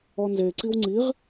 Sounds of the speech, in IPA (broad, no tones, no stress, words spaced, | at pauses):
ɔnze ǀiwŋ͡ǀiʁ